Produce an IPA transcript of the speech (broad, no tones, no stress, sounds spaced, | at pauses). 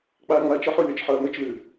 k͡p a ŋ͡m a t͡ʃ ɔ ħ u lʲ ɔ t͡ʃ ħ ɤ ɐ̯ m ɘ t͡ʃ l ʉ